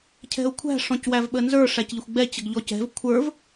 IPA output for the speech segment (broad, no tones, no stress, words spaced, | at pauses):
cʰɛ̤ʊ̯kʷʰæ̤ ʂɔ̃cwævɓənzə˞ ʂæcʎɪxʷɡ͡bɛ t͡ɕəɡʎɔcɛ̤v kʷʰə˞v